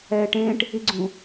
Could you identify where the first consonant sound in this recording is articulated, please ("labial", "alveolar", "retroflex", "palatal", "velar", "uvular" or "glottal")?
retroflex